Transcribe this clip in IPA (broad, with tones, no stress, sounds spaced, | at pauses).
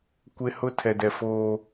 kʷ e˦ h ʊ˦ tʰ ɛ˨ d ɛ˨ f oː˦